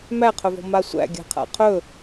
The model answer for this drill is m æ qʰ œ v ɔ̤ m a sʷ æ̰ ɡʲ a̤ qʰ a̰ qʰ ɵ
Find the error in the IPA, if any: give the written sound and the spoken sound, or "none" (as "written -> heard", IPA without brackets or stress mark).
none